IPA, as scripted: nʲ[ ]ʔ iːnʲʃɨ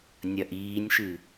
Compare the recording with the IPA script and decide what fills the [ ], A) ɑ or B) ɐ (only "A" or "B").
B